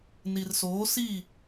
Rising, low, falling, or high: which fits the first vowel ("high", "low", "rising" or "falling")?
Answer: low